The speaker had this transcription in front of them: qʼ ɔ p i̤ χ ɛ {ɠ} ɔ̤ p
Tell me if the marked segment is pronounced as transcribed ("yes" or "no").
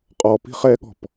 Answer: yes